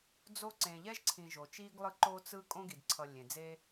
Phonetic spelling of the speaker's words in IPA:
d͡zo˦ǀẽ˨ ʎɛ˥ʒǀʰĩ˨ʒo˩t͡ʃiː˦ɡ lˠɯ˦ ǃo˦t͡sɯ˦ kʼõ˥ɡi˩d ǀʰʌ˨ lʲẽ˩d͡zeː˦

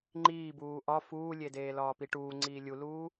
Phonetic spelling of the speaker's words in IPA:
ŋ͡ǃiːbuː ʔɒ fuːlʲedeː lɒːpiʈuːŋ͡ǀiː lʲuluː

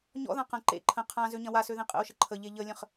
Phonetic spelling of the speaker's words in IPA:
ɲɔ̰ðã qɐ̃ ǃḛ ǃʰə̃ qʰã zøɲɐ̃wasø ðẽqʼə̰o̯ʃə ǃʰəʎe ʎəlʲə̃χ

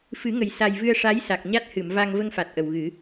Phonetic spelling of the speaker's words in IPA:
fɨ˨˩˦ŋə˨˩j sa˨˩jvɨ˧ə̯ʂa˧˥j sa˨˩k̚ ɲa˦˥t̚hɨ˨˩˨mva˧ŋ və˧ŋfa˨˩t̚ ʔə˨˩wɣɨ˨˩˦

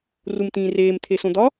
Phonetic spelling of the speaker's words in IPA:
rumt̪ĩːreːm t̪ʰesõd̪ɒ

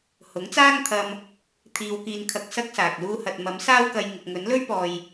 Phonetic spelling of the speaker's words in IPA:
hʊ˨˥ŋt͡saː˥ŋt̪ʰɐ˧m | t̪ʰiː˧wkiː˧nkʰɐ˧k̚ sɐ˥k̚saː˨k̚ luː˧hɐ˨t̚ mɐ˨˥msaː˥wkɐ˧j ŋɪ˨k̚ŋɵ˨˥nlɵ˥ɥpɔː˨j

